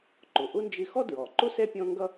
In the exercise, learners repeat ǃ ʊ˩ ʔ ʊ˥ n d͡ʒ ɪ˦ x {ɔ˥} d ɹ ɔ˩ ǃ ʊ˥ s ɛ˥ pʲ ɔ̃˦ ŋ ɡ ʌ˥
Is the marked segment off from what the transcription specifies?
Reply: no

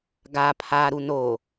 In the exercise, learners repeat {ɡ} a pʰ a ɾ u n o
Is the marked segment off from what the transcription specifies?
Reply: no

